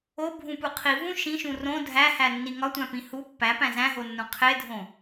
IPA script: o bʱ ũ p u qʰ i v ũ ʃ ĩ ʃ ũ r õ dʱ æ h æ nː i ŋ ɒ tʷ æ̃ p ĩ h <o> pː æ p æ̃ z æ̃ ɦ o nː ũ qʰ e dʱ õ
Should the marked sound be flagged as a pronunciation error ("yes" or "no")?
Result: yes